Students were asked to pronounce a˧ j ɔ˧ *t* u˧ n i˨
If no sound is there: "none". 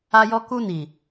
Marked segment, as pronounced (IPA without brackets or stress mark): k